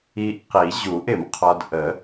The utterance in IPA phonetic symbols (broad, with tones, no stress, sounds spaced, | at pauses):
i˧ ʔ q i˨˩˦ ʑ u˨˩˦ ʔ ɪ˨˩˦ m qʰ ɔ˧ d ʔ ə˨˩˦